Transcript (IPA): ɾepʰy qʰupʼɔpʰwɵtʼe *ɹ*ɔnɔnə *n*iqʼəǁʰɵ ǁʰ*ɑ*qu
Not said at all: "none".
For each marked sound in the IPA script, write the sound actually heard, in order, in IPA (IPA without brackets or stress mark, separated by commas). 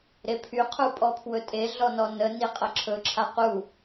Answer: ɮ, n, a